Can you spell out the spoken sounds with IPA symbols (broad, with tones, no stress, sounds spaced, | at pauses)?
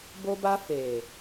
b o˧ b a˧ f e˨